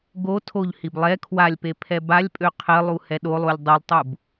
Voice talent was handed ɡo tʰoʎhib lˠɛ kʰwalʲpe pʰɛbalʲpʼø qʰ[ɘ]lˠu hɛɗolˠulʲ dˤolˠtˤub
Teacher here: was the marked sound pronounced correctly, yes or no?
yes